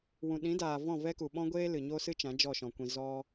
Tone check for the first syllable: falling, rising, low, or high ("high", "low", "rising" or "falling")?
low